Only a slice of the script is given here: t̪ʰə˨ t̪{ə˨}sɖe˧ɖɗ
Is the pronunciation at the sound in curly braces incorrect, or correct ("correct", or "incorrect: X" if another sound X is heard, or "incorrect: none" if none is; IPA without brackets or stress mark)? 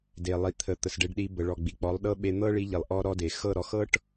correct